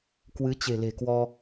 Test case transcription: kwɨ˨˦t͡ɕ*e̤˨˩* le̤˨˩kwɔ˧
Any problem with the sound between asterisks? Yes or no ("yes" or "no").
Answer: no